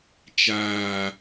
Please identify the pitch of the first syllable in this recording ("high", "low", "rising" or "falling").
low